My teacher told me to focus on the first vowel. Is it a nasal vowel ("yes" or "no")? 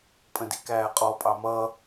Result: yes